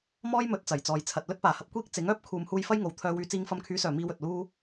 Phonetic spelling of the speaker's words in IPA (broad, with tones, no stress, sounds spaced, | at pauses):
m ɔː˥ j m ɵ˨˥ t̚ t͡s ɐ˨˩ j t͡s ɔː˨ j t͡sʰ ɐ˨ t̚ l ɵ˥ t̚ p aː˨˩ h ɐ˨ p̚ kʷ iː˥ k̚ t͡s ɪ˨˥ ŋ œː˥ p̚ kʰ uː˨ m h uː˧ j f ɐ˥ j ŋ o˨ w t̪ʰ œː˧ w yː˧ t͡s iː˧ ŋ f ɐ˧ m kʰ yː˨˥ s œː˨˩ m iː˧ w ɵ˨ t̚ l uː˥